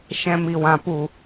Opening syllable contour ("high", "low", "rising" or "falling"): low